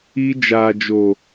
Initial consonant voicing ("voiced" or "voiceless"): voiced